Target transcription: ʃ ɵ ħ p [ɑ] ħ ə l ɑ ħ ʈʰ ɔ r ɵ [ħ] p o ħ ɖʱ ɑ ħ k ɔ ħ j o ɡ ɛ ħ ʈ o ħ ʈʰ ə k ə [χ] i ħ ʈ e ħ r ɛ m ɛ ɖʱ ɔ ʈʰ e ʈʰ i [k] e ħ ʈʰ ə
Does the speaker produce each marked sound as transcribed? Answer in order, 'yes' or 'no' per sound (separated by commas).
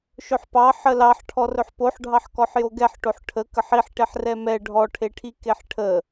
yes, yes, no, yes